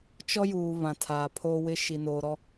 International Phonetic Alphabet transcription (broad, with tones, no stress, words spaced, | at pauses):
t͡ʃɔ˦juː˨ βã˨tʰaː˨pʰoː˦wɪ˦ ʃi˨noː˨ɾɔ˦